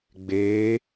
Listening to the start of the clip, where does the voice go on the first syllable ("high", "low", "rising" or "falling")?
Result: rising